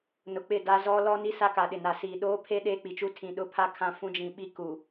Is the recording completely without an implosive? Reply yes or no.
no